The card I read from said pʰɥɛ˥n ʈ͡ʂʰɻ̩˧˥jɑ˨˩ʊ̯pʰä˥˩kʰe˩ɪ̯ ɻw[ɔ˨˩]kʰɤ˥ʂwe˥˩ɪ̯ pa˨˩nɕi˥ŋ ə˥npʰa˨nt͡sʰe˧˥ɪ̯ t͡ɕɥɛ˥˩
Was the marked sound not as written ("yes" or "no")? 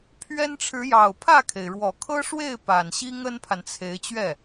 no